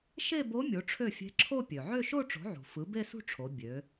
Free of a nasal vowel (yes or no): yes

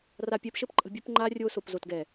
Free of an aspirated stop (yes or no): yes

